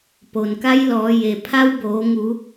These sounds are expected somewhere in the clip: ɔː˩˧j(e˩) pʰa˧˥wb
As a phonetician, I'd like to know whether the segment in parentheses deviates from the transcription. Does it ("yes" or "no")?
no